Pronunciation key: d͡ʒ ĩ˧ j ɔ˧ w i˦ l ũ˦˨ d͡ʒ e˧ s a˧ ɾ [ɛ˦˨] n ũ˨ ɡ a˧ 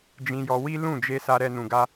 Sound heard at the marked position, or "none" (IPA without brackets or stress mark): ɛ˧